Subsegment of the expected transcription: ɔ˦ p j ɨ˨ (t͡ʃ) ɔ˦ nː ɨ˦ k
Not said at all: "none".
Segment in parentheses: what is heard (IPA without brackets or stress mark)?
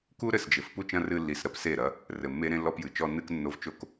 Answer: t͡ʃ